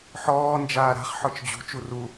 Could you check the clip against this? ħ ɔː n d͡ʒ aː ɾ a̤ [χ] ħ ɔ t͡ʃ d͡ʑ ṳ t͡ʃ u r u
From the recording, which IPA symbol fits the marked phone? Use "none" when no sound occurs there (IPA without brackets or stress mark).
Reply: χ